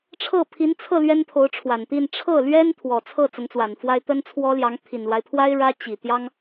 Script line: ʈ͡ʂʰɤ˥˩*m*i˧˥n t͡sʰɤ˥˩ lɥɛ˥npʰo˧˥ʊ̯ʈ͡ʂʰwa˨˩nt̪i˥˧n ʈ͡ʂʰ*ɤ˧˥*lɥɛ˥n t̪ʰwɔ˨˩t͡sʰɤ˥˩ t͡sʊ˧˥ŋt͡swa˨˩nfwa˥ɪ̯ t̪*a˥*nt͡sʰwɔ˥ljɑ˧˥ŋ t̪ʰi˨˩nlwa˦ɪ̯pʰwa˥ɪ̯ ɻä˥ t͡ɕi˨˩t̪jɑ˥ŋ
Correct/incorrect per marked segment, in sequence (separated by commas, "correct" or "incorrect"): incorrect, incorrect, incorrect